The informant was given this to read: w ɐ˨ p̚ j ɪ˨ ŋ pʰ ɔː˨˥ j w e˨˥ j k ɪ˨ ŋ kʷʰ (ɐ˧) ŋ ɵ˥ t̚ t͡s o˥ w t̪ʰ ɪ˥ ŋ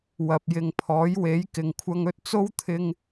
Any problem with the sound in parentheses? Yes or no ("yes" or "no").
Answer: no